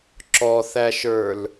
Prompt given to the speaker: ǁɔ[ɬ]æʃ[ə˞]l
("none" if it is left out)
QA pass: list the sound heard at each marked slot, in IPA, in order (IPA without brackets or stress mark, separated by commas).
θ, ə˞